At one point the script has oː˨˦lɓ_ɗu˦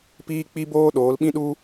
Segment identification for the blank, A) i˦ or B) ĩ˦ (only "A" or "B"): B